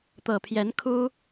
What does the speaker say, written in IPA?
t̪ɤ˨˩pʰjɛ˧˥nkʰu˥

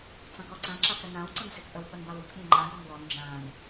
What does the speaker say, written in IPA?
t͡sɑ̃kɔǀã ǁakɾənãw ǀə̃nsɪkʔəw ɓənbawik ɓĩŋ͡ǃã ɡɔmwɔn d͡ʒãn

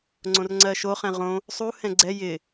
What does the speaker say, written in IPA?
ŋ͡ǀõrŋ͡ǀɜʃo χɛ̃ʁõ | sˤuhɛ̃ ɡ͡ǀɛ jɪ

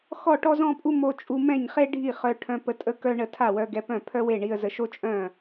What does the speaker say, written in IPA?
xɔ˥˩ ʈɔ˥zɔ̃˥pʼu˥ mo˧ t͡ʃʼu˧mɛ̃˥˩ɲχe˥ɖʱi˥˩ χœ˧ʈʰœ̃˧pə˧ tʼə˥kœ˥ ɳə˧tʰa˥˩wœ˧ ɡɛ˧pœ̃˥˩ pʰœ˥we˥˩ɳi˧ə̯zə˧ ʃo˥t͡ʃʼœ̃˥˩

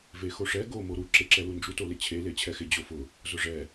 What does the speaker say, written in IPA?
vexoʂɛ ɡo moɾu ǁeǁɛlund͡ʒu tolɪt͡ɕʰe let͡ɕʰɛxɪ d͡ʑofʊ | zʊʐɛ

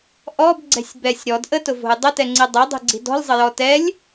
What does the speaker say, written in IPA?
ʔɔbɡ͡ǀɛ̤sʲ bɛsʲ ɾɔd ʔətʊvo̤j dˤətɛŋ͡ǀi dˤɛdˤi̤ɡ͡ǀi̤ dɔ̤lʲzˤəjɔ tɛlʲ

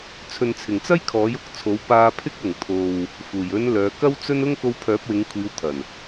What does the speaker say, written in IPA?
t͡sʰɵ˨nt͡sʰɪ˨˩ŋt͡sɐ˥j kʰɔː˨˥jʊ˧k̚t͡sʰo˨˥w paː˧pʰɪ˥k̚ ʊ˨˩ŋ t̪ʰo˨w | fuː˨˩j ɵ˨˧n lœː˨˧ kɐ˥wt͡sɵ˥n ʊ˥ŋko˧wpʰœː˨˥p̚wɪ˨˧ŋ kʷʰiː˨˧wt̪ʰɐ˨˩n

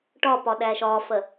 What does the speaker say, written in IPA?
ʈɒpɒɗæːʃ ɒːfɜ

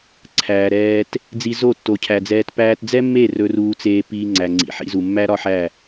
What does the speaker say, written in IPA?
ǀʰæː˨ɾɛː˧t | d͡zi˧ zo˦˨tːo˨cʰæ˨d͡zɛː˧t pæː˧td͡zɛ˦mːe˦˨ rɵ˧ruː˧t͡seː˧ piː˧ŋ͡ǀæ˨ ŋ͡ǀḭ˨ ħḭ˧zu˨mːæ˦ ɾɒ˦ħæ˦˨

